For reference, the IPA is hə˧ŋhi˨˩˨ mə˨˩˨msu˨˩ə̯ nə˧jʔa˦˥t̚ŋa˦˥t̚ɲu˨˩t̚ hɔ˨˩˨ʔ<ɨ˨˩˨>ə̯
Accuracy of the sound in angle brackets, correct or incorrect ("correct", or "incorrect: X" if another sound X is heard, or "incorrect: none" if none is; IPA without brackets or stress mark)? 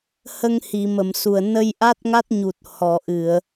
correct